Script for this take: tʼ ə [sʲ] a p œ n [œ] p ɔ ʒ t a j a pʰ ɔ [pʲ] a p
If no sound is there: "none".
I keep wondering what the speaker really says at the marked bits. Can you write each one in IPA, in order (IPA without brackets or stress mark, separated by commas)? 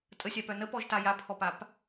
sʲ, ə, p